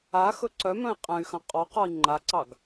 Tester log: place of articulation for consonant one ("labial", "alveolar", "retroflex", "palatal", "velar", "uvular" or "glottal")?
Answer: velar